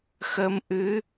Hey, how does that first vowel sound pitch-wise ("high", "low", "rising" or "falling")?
rising